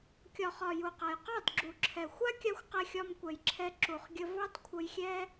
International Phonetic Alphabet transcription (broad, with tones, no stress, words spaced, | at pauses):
kʲɒ˨χɒ˨ ju˨qa˨j qɑ˦˨dɡ͡ǁu˨ǁʰɛ˨ xʷa˦kʲa˧xʷ qɛ˧xʲɒ˧mkʷɛ˨jǁʰɛ˧ ǁu˨χɡʲə˧ vɑ˦tkʷʰə˧jxʲɛ˦